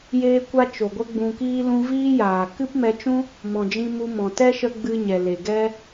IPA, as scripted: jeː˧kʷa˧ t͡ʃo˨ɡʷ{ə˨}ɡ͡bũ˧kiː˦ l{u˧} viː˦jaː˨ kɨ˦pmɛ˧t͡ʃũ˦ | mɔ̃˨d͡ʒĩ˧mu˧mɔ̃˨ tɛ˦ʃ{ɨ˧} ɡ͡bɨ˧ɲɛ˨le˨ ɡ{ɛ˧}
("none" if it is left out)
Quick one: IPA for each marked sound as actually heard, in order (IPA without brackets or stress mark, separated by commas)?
ə˦, ũ˧, ə˧, ɛ˧